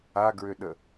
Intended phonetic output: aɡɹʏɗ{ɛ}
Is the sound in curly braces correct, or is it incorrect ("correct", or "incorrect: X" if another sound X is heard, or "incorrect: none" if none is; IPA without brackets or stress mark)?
incorrect: ə